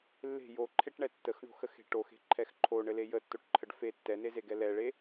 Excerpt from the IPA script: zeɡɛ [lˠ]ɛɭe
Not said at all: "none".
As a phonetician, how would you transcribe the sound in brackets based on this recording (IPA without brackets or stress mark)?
l